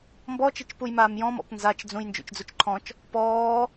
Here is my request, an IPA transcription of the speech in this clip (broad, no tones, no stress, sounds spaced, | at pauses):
m b ɔ t͡ʃ i t͡ʃ p u j m aː m j ɔ̃ m ɔ̰ p n z a t͡ʃ d͡z ũ j n d͡ʒ ṵ t͡ʃ d͡z u t͡ʃ ǃʰ ɔ̃ t͡ʃ | p ɔː